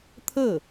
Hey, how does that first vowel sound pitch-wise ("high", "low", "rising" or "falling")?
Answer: falling